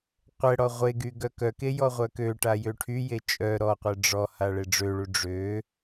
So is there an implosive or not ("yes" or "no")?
no